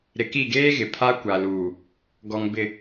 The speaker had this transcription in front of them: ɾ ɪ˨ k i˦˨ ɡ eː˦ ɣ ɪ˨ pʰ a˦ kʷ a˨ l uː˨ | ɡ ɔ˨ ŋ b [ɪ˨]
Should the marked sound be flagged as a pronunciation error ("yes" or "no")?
no